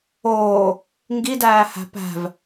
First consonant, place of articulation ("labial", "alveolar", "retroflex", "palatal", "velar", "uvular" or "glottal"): velar